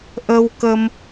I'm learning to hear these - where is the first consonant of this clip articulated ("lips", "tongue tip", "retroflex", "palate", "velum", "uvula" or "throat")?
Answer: throat